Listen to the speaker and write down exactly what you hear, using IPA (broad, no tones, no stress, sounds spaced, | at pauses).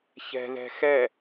ç ɛ̤ ð ɛ̤ x ɛ